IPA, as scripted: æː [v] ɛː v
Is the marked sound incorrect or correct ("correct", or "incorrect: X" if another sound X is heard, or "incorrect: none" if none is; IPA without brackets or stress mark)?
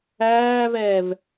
correct